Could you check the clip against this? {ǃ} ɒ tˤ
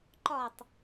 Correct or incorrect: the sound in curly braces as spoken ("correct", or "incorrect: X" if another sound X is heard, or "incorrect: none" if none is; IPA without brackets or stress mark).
correct